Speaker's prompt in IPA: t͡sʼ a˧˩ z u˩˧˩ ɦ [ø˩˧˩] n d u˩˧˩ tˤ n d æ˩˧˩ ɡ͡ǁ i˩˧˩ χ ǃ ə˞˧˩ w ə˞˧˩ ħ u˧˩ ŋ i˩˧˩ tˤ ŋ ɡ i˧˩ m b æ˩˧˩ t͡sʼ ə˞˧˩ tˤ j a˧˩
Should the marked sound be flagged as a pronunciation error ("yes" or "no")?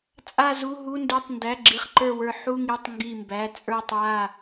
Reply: yes